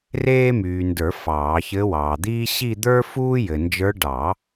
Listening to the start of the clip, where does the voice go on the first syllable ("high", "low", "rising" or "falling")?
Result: high